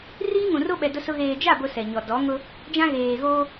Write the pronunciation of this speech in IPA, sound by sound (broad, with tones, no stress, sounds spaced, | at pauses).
r iː˦ ŋ ũ˨ r o˦ ɓ ɛ˨ d ʊ˦ s ʊ˦ ɣ eː˨ d͡ʒ a˦˨ b ʊ˨ s ɛ˨ ɲ ɔ˨ d ɔ˨˦ ŋ ʊ˦ | d͡ʒ ã˦ ɣ eː˨ ɣ oː˦